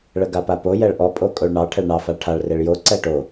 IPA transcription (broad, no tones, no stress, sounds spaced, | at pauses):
ɭ ə ɡ a p a p o j ɛ ɭ ʔ ɔ pʼ o kʼ o ɭ ɳ ɑ ʈʰ ɛ ɭ ɳ ɑ f a ɭ ʈʰ a ɭ r e ɭ j o ǀ ɛ ʈ o